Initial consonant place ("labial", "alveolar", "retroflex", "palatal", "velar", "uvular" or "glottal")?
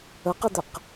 uvular